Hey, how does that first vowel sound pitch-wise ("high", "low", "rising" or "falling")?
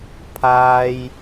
low